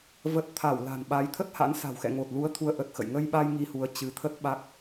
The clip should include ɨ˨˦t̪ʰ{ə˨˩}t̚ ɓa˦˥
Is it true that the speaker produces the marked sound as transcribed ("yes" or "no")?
no